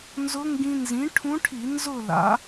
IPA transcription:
n z ʊ˧˥ ŋ ɡ ĩ˧ n z ĩ˩˥ ʈʰ ũ˧˥ ʈʰ i˧˩˧ n z ʊ˥˨ l a̰˩˥

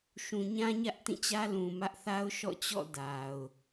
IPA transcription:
ʃ ũ˨ ɲ ã˦ ɲ ä˦ ʔ t ĩ˦˨ t͡ɕ ä˦ l ũ˨ m ä˦ ʔ θ a˦ ʊ̯ ʃ ɔ̰˦˨ t͡ɕ ɔ̰˦˨ d a˨ ʊ̯

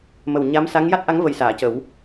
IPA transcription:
m ə˨˩ w ɲ a˧˥ m s a˧˥ ŋ j a˦˥ t̚ ʔ a˧˥ ŋ v ə˨˩ j s aː˨˩˨ c ə˨˩˦ w

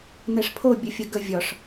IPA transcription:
n ɛ ʂ pʰ o bʲ ə fʲ ə ɡ ə vʲ ɒ ʂ

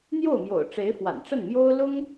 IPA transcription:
n̪ j o˥˩ ʊ̯ m j o̰˨˩ ʊ̯ ʈ͡ʂ e˧˥ ɪ̯ f w a̰˨˩ n ʈ͡ʂ ə˥˩ n m j o˥ ʊ̯ l ʊ˥ ŋ

